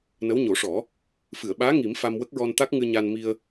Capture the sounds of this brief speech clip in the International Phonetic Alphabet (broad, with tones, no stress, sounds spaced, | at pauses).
n ə˧˥ w ɲ o˨˩˦ ʂ ɔ˨˩˦ | f ɨ˨˩˨ ə̯ ɓ aː˧˥ ŋ i˨˩˦ m f a˧ m w ə˦˥ k̚ ɹ ɔ˧ n t̪ a˦˥ k̚ ŋ ɨ˧ ɲ a˧ n m i˧ ə̯